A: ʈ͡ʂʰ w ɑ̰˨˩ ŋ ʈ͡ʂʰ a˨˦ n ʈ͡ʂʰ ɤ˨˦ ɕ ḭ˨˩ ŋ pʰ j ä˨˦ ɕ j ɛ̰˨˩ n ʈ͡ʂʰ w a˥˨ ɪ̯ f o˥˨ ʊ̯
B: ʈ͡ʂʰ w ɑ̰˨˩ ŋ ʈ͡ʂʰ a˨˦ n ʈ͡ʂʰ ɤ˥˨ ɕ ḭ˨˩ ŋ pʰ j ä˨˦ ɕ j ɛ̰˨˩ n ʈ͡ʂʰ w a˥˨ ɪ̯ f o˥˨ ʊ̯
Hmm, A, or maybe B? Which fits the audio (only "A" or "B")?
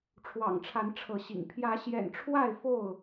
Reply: A